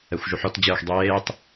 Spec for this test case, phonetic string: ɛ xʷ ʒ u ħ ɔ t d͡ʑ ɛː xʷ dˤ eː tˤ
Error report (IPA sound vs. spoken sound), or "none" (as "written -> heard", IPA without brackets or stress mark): none